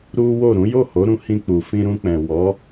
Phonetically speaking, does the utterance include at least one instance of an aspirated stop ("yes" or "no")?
no